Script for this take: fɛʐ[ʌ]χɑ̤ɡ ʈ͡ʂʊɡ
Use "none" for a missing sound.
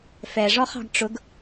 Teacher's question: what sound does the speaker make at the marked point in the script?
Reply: ɔ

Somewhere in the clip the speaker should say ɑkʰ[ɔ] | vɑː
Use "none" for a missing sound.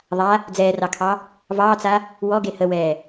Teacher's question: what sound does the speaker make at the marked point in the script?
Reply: ɑ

